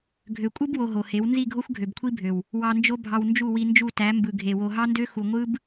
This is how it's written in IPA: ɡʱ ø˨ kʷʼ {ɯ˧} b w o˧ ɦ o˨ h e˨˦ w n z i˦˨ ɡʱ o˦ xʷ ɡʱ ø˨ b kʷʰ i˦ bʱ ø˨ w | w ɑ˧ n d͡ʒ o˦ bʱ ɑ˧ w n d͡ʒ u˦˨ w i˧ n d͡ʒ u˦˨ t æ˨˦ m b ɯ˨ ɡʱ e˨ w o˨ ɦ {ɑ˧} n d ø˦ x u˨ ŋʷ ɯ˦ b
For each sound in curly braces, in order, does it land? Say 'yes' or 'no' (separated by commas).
no, no